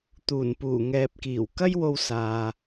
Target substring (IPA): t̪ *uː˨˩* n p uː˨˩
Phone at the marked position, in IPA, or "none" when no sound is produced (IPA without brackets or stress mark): uː˨˩